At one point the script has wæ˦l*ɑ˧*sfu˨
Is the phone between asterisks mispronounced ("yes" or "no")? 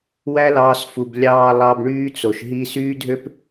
yes